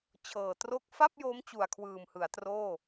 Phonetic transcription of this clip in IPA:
t͡ɕʰ ɤː˨˩ t r o˥˩ k̚ f a˥˩ p̚ j oː˦˥ m t͡ɕ u˨˩ a̯ kʰ w ɯː˨˩ m h ɯ˩˦ a̯ t r oː˥˩

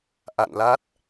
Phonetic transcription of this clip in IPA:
ʔ a̰˧˨ n l a˦˥ t̚

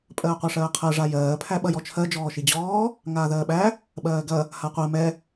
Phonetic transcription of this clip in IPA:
pʼ ɜː qʷ æ ʂ ɜː qʰ ɜ ʐ a j ɜː pʰ æ ɓ ɐ j ɔ t͡ʃʰ ɜ d͡ʒ ɔː ʃ i d͡ʑ ɔː | ŋ aː ð ɜː ɓ æ | ɓ ɜː ɡ ɐ | h a qʷ ɜ m ɛ

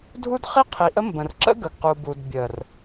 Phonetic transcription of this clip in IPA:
dʱ u˦ d χ i˦ qʰ i˨ ʔ ə˦ m b ə̃˨ r ǁ ə̰˦ ɡ ə˨ ɡ q u˨ b u˨ d bʲ ə˨ r

